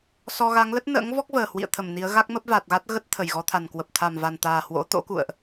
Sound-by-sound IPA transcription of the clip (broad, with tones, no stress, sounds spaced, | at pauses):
s ɔ˧ ɣ a˨˦ ŋ l ə˦˥ t̚ n ə̰ː˧˥ ŋ v ɔ˦˥ k̚ v əː˨˩ h w ḭ˧˨ ə̯ t̪ʰ ə˧˩ m n i˨˦ ə̯ ɣ a˦˥ k̚ m ə˦˥ p̚ v a˨˩ t̚ ɣ a˦˥ t̚ ɣ ə˦˥ t̚ t̪ʰ ə˧˩ j ɣ ɔ˨˦ t̪ʰ a˨˩ n k w ə˨˩ p̚ t̪ʰ a˨˩ m v a˨˩ n t̪ aː˨˩ h w o̰˧˥ t̪ o̰˧˥ k ṵ˧˨ ə̯ ʔ